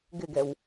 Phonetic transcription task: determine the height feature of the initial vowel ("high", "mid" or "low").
high